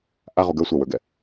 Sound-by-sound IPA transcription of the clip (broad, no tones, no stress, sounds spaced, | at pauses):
ʔ a ʁ u ɡ ə˞ sʷ ə˞ w ə˞ ɡ ɛ